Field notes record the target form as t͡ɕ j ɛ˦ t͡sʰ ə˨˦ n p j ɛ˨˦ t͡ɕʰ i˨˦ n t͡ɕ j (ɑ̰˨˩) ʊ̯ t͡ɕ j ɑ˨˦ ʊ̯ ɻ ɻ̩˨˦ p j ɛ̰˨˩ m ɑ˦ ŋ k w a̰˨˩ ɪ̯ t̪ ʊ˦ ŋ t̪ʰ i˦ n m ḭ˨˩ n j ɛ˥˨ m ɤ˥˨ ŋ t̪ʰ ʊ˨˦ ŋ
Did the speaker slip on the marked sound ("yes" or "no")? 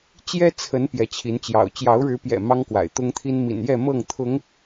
no